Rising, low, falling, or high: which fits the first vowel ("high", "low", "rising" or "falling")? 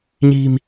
low